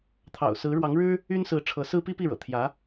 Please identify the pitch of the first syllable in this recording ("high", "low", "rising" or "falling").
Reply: low